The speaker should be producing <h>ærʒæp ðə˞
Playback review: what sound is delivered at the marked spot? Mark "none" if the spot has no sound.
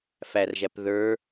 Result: f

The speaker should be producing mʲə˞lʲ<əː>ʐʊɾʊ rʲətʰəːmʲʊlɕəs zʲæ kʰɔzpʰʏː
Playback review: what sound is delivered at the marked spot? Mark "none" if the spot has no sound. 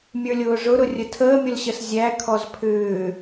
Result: ʊː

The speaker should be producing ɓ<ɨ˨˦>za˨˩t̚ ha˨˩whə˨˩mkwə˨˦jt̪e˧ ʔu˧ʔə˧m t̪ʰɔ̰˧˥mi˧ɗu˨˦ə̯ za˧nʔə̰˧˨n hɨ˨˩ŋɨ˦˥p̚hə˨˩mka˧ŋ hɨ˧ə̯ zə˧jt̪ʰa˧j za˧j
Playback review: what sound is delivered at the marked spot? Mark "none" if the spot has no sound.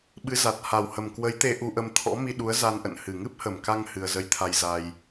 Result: ɨ˨˦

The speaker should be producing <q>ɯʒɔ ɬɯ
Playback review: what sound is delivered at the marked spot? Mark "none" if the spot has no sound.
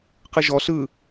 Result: q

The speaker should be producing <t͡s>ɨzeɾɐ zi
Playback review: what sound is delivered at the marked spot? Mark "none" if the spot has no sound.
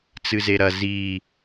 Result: t͡s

